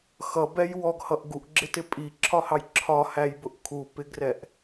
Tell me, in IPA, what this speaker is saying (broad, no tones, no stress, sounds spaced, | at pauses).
x ʌ b ɛ j w ɔ ɡ h ʌ ʔ ɡ u ʔ ɡ͡ǁ ɪ t ɪ pʼ i ǁʰ ɒ h ɑ j ǁʰ ɒ h æ j b ʊ ʔ kʰ u p ɪ ɡ r ɛ ʔ